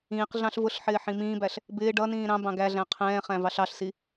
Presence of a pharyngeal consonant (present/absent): present